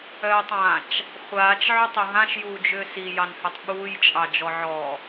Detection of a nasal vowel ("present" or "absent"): present